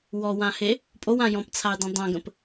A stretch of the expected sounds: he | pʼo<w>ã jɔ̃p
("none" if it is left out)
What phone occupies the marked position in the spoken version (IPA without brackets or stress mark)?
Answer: w